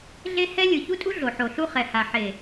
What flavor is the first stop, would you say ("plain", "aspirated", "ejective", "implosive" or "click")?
ejective